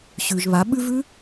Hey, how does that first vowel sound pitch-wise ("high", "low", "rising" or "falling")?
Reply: low